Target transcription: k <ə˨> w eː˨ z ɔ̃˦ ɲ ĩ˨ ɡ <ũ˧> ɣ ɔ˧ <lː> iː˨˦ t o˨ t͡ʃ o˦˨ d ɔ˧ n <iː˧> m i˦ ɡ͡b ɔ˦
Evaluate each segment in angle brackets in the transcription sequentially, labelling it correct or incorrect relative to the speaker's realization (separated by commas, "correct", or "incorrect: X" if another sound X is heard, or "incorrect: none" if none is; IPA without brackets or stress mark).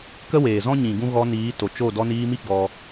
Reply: incorrect: ə˦, incorrect: ũ˦, incorrect: n, correct